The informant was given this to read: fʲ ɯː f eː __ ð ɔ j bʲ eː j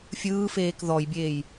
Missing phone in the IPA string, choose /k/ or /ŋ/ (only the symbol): k